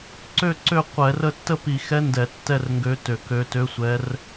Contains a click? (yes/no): yes